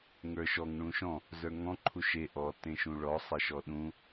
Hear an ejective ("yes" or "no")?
no